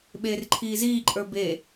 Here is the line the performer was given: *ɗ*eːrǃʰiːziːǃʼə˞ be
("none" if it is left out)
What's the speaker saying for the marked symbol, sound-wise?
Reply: ɓ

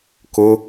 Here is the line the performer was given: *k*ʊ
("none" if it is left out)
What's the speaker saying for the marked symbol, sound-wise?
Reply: k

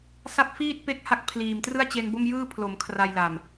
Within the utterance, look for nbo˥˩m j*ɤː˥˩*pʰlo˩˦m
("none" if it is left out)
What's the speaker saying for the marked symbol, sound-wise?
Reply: ɯː˥˩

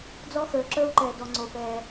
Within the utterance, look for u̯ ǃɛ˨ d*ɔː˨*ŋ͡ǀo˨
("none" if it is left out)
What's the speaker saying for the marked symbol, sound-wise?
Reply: ɔ˨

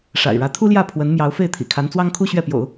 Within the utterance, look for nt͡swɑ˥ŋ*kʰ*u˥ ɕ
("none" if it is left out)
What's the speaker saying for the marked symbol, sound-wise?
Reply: kʰ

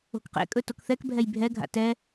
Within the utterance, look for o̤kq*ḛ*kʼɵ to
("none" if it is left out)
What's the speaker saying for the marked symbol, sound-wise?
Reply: ḛ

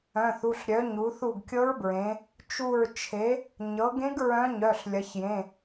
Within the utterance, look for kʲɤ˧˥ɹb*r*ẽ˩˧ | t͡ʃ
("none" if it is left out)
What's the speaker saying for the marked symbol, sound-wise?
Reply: ɹ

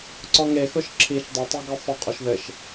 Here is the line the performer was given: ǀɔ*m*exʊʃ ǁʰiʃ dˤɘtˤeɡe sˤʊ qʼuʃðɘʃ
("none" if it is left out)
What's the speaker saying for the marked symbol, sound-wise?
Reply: ŋ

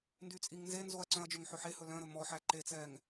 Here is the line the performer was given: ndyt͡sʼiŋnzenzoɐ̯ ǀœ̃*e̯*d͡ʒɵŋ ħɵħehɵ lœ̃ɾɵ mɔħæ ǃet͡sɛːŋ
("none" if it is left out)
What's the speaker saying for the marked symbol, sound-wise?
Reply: ɐ̯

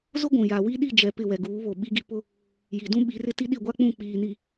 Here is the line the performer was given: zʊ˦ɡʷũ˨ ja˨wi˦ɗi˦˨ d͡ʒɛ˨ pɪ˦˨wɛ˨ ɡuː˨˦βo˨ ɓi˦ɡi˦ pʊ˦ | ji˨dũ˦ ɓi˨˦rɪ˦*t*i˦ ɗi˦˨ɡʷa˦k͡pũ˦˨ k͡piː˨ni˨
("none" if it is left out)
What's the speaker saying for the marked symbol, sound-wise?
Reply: t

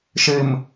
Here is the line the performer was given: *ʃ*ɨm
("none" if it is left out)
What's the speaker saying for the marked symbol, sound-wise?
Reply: ʃ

